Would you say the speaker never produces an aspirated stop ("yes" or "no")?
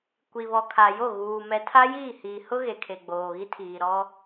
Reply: no